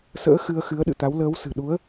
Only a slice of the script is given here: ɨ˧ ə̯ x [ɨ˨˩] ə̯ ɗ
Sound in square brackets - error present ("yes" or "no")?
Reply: yes